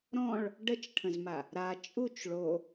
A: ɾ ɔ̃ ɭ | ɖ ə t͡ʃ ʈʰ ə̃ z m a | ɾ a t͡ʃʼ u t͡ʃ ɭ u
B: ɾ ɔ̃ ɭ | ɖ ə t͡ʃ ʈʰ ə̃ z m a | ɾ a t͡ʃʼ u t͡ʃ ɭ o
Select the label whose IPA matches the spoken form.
B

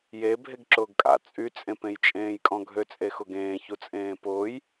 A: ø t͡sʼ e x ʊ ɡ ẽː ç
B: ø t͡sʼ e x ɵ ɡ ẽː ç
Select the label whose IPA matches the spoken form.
A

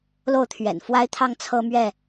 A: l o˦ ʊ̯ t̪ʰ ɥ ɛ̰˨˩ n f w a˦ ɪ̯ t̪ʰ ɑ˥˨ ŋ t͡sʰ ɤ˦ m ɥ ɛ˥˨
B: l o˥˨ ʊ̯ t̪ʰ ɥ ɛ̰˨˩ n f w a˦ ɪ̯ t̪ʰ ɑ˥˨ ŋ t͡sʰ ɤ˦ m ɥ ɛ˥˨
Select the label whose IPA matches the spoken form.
B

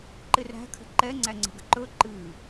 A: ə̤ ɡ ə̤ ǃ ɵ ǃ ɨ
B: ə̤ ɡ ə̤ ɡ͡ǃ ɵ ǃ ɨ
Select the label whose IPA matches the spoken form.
A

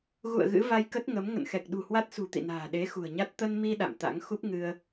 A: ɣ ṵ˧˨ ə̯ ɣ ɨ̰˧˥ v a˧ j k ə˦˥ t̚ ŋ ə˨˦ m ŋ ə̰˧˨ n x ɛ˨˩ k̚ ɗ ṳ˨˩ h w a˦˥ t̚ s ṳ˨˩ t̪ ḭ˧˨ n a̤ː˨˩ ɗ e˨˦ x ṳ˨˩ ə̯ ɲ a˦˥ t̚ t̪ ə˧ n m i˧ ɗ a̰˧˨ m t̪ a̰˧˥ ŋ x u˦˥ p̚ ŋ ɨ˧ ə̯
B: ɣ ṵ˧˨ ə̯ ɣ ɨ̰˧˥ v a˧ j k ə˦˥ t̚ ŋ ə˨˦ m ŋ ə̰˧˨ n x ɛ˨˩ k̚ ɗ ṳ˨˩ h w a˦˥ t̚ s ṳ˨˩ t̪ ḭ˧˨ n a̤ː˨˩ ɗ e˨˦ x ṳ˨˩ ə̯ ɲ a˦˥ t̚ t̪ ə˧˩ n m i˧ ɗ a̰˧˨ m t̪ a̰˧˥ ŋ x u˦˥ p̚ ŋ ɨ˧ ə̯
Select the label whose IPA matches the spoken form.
A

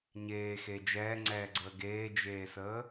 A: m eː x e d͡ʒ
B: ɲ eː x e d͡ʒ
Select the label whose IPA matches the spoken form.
B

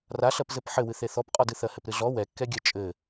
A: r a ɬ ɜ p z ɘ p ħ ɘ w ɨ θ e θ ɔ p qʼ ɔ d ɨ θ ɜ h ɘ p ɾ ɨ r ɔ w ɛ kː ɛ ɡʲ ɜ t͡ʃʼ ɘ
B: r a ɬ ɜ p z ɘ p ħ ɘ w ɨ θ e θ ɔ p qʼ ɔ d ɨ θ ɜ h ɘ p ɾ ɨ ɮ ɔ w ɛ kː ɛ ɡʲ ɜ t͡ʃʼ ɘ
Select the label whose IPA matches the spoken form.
B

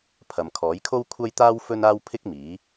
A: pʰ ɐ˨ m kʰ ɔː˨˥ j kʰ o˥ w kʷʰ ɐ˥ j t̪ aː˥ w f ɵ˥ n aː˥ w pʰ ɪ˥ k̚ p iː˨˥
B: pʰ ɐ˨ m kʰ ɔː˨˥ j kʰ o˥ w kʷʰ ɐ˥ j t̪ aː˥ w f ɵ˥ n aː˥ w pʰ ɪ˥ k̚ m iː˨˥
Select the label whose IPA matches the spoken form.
B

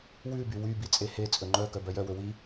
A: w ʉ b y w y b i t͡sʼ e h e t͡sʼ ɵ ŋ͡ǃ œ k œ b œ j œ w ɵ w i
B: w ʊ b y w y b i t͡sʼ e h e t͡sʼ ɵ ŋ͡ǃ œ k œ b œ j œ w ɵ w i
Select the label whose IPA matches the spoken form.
A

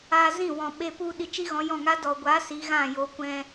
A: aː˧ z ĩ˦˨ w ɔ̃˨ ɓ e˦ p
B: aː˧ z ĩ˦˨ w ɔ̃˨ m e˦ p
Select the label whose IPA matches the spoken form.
A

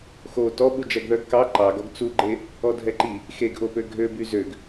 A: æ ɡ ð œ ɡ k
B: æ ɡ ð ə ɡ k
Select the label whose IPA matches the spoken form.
A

